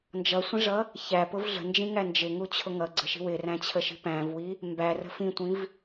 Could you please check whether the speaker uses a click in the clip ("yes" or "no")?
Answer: yes